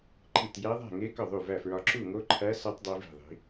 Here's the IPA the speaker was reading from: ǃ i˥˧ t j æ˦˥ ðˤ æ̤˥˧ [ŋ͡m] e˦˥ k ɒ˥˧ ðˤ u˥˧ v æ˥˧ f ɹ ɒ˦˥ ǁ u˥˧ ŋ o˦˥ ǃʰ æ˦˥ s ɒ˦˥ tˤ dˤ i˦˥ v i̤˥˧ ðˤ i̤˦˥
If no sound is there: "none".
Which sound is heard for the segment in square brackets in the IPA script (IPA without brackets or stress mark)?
ŋ